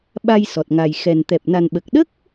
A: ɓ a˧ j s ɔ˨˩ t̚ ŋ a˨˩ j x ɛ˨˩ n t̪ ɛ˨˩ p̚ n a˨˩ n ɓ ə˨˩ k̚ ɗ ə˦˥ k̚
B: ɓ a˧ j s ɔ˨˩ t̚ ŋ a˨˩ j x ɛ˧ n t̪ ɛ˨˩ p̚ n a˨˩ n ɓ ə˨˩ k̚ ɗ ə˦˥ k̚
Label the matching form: A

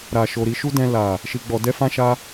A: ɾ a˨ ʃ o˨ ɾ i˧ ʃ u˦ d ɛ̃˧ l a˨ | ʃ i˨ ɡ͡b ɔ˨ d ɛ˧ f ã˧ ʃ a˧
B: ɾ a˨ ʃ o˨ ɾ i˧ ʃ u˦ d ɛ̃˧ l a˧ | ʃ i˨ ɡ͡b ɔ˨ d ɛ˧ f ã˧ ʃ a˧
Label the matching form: A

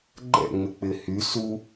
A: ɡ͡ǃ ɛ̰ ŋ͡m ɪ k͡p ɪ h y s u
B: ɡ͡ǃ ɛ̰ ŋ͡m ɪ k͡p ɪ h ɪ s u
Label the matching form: A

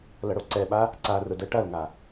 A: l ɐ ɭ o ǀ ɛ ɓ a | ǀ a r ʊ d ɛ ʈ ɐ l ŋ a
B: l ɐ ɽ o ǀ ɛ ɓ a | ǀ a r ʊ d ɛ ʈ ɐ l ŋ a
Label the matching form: B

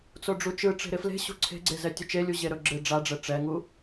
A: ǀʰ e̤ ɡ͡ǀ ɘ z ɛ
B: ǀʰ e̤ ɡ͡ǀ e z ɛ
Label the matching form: B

